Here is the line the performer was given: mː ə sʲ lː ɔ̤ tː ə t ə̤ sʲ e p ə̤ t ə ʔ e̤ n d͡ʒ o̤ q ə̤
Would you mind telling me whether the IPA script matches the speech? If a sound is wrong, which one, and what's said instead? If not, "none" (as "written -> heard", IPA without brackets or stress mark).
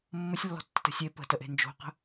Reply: none